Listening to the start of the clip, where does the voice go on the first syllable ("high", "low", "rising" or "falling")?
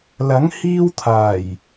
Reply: rising